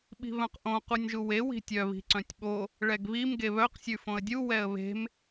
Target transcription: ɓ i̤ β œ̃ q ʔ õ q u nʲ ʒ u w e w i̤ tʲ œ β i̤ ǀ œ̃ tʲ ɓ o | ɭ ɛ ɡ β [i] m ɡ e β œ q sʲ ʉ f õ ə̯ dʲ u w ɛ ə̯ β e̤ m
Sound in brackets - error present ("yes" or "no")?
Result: no